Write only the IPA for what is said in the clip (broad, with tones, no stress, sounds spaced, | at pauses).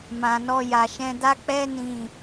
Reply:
m ã˨ n ɔ˧ j a˨ ʃ ɛ̃˧ d a˦ k͡p ɛ˦ n ĩ˦˨